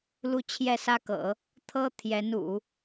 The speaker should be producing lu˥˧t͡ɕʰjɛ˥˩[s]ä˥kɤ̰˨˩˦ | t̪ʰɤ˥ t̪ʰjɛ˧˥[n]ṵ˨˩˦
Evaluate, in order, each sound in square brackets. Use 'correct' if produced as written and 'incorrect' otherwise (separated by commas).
correct, correct